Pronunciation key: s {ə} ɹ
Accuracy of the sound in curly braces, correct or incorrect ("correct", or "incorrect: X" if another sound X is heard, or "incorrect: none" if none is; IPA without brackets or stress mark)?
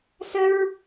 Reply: correct